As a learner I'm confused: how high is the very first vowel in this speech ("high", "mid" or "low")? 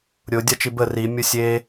high